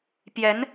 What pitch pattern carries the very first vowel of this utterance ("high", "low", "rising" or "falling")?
rising